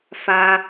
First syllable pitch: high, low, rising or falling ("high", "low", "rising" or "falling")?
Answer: high